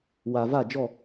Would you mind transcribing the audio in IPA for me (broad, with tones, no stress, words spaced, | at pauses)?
wa˨ va˦˨d͡ʒɔ˦˨